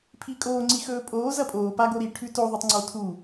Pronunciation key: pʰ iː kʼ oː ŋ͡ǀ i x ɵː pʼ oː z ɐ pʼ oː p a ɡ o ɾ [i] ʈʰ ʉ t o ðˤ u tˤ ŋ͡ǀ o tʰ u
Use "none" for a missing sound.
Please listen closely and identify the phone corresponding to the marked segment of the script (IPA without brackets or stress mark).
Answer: i